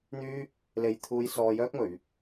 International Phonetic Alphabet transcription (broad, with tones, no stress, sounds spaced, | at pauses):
n̪ yː˥ | l e˧ j t̪ʰ uː˧ j s ɔː˧ j œː˥ k̚ m ɵ˨˧ ɥ